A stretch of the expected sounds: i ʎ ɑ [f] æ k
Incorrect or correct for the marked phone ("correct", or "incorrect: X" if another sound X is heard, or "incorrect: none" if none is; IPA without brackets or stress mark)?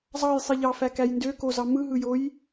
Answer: correct